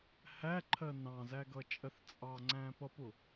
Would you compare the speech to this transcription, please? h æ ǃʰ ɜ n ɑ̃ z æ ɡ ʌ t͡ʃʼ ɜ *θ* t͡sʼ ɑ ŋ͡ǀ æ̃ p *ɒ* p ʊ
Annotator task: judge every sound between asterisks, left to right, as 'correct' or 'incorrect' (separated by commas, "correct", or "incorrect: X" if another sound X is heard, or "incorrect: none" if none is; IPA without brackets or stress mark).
correct, incorrect: ʌ